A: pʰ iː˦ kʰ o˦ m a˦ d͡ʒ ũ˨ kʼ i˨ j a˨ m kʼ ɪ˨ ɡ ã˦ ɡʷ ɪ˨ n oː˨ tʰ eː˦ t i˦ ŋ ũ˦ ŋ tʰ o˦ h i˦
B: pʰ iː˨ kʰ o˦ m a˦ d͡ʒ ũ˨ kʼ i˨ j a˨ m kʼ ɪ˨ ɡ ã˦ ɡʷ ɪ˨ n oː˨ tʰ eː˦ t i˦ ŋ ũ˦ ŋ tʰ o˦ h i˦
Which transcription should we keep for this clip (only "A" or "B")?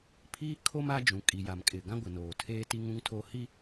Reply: A